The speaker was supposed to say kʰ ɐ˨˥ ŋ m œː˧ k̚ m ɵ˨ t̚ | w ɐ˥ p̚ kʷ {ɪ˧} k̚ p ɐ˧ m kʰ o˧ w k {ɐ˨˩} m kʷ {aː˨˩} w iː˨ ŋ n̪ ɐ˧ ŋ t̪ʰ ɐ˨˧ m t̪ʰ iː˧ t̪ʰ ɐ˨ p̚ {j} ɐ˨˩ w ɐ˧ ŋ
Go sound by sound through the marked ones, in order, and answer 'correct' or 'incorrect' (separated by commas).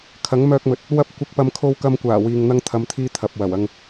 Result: correct, incorrect, correct, incorrect